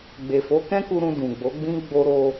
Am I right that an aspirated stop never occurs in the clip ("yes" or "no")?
yes